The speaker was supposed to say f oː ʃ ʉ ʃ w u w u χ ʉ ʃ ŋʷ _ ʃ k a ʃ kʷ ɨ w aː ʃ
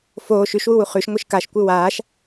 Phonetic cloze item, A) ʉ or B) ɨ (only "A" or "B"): B